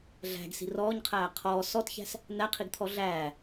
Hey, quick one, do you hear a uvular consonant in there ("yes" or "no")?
yes